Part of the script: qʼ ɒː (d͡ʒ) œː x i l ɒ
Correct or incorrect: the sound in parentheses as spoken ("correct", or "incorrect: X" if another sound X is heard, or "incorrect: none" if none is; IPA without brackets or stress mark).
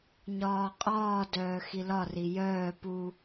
incorrect: d